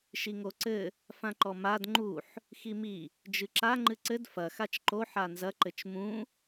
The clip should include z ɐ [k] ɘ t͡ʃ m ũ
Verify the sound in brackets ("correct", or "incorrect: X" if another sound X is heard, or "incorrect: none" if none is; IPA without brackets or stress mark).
incorrect: ǃ